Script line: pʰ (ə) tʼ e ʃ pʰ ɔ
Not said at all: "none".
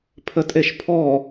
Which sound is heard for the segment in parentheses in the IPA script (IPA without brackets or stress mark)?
ə